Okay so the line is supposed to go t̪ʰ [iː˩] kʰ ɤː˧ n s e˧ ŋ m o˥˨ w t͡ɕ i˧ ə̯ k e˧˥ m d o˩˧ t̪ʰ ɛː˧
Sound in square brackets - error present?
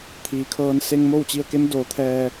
no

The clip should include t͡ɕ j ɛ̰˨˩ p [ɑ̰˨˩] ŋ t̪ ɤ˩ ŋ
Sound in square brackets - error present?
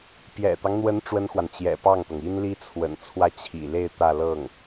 yes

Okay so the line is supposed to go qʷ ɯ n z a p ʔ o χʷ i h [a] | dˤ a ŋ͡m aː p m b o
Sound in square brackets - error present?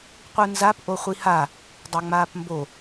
no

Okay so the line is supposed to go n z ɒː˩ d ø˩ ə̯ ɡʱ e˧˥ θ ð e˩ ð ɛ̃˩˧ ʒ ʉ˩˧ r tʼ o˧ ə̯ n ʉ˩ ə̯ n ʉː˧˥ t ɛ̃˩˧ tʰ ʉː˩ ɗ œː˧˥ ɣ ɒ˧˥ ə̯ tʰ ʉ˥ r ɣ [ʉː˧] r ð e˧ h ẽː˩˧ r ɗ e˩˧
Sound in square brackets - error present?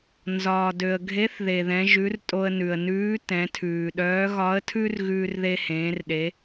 no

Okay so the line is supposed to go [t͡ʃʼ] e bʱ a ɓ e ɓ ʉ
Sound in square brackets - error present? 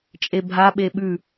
no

